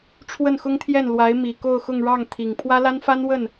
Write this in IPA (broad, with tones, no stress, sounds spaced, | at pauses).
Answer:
ʈ͡ʂʰ w ə˥˩ n x ʊ˥ ŋ t̪ʰ j ɛ˥˩ n l w a˧˥ ɪ̯ m i˨˩ k o˥˧ ʊ̯ x ʊ˥˧ ŋ ɻ ɑ˥˩ ŋ t̪ʰ i˨˩ ŋ pʰ w ä˥ l a˥ n f a˥ n w ə˥˩ n